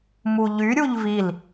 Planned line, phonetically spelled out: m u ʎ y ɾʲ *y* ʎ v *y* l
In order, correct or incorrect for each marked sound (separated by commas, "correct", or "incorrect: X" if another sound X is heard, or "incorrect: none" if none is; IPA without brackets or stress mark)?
incorrect: u, incorrect: i